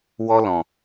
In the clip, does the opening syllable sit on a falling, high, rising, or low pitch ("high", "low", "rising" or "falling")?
high